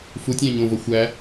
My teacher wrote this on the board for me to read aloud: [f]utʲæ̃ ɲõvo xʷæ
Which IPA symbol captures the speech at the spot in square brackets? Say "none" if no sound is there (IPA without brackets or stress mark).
f